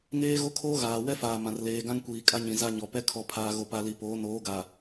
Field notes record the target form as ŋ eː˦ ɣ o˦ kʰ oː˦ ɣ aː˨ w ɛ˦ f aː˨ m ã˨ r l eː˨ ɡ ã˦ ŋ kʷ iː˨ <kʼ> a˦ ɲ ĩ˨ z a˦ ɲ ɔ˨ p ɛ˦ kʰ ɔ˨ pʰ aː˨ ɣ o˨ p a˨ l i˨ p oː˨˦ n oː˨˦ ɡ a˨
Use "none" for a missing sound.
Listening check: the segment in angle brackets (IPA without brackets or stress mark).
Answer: kʼ